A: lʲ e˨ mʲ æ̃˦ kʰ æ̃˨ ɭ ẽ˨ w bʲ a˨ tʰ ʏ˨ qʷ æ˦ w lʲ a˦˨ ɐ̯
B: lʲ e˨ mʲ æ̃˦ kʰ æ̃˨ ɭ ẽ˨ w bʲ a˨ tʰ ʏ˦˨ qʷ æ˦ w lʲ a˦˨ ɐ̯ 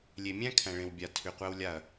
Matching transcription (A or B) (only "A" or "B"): A